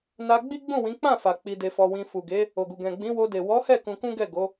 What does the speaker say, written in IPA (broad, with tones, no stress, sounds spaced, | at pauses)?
n a˧ ɡ͡b i˦ ɡ͡b ũ˦˨ w ĩ˨˦ k͡p ã˦˨ f a˨ k͡p i˧ d e˧ f ɔ˧ w ĩ˧ f u˨ ɡ e˨˦ | o˨ ɡ u˨ ɡ ɛ̃˨ ɡ͡b ĩ˨˦ w o˧ d e˨ w ɔ˨˦ h ɛ˦˨ k ũ˧ k ũ˦ ɡ ɛ˦˨ ɡ o˨˦